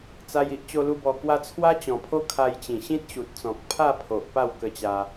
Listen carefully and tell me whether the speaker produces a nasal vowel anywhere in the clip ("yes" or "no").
yes